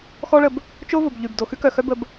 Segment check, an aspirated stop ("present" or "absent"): absent